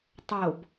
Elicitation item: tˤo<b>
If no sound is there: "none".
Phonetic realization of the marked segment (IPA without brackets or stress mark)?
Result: b